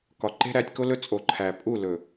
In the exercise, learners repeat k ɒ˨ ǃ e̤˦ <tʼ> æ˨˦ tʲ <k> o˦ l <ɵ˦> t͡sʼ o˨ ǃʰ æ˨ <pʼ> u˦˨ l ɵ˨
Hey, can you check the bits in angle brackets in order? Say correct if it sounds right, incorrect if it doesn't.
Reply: incorrect: ɾ, correct, correct, correct

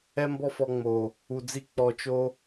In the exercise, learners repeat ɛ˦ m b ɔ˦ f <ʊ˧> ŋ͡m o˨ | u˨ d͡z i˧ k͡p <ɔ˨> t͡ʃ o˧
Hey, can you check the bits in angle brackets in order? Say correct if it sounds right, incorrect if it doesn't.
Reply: incorrect: ɔ˧, correct

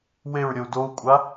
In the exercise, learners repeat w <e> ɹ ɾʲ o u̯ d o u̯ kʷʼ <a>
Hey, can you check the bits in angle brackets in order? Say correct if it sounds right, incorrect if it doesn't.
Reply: correct, correct

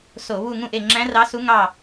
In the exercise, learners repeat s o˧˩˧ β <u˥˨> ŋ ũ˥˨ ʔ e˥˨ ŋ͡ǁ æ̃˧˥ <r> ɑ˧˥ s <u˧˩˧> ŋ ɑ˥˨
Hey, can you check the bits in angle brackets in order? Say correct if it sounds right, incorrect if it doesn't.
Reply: correct, correct, incorrect: u˧˥

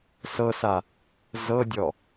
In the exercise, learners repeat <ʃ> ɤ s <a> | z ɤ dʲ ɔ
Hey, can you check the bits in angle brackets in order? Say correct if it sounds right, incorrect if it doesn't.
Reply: incorrect: s, correct

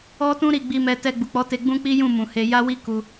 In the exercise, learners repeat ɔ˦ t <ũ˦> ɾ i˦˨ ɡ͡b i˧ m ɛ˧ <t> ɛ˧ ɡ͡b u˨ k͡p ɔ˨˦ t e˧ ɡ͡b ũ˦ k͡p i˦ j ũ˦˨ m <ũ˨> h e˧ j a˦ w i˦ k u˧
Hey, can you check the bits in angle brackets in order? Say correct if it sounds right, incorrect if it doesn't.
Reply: correct, correct, correct

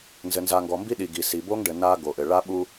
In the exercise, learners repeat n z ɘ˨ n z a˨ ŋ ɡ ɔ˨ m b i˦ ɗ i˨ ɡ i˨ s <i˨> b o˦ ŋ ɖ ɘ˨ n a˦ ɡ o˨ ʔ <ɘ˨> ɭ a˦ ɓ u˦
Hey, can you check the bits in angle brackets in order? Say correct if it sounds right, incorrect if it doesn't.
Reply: correct, correct

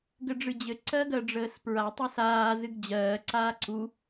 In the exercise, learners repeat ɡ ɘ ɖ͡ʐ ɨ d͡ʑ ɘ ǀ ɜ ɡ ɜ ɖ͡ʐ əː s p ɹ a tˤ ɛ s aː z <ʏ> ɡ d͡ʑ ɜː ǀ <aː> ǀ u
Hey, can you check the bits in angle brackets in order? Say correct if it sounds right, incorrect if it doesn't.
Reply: incorrect: ɨ, correct

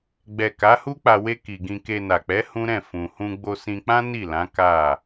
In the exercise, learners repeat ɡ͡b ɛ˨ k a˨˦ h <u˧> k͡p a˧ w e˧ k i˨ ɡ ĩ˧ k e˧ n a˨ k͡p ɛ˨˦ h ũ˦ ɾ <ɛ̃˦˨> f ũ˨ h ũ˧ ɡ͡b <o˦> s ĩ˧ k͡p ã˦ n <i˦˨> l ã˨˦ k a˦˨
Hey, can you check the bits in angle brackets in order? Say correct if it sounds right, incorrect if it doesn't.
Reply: incorrect: u˦, correct, incorrect: o˧, correct

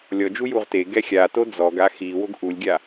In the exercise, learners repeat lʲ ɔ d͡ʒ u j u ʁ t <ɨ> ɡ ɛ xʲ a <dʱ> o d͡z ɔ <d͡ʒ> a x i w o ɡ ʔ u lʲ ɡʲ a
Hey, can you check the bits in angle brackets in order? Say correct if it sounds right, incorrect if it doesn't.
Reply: incorrect: e, incorrect: t, incorrect: ɡ

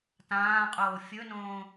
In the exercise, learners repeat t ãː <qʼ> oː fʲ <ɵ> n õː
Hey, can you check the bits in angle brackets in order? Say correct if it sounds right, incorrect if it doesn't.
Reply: correct, correct

